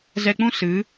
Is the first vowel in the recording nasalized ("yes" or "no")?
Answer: no